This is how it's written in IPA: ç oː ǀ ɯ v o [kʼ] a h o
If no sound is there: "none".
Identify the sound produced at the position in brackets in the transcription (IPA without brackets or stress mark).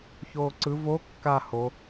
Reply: kː